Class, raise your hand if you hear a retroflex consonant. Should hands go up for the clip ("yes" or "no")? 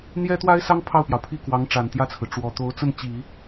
yes